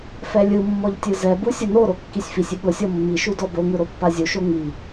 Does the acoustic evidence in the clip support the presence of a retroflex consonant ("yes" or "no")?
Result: no